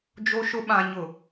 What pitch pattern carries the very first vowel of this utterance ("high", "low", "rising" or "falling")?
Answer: high